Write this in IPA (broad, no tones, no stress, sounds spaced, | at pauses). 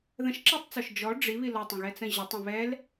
ð ə̃ ʃ ǁ ɑ tˤ t͡s ɔ ʃ d͡ʒ ɔ ɖ͡ʐ i β i l ɔ tˤ ə̃ ɣ ɛ t͡s ə̃ ʑ ə tˤ ə̃ β ɛ l